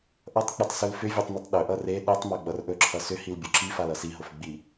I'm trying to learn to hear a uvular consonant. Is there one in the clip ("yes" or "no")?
no